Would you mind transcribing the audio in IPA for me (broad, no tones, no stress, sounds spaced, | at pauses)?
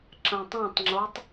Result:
ǁ ɐ̃ tˤ ã tˤ ŋ͡ǁ o tˤ